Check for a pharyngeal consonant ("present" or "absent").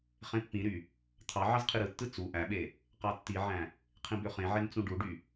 present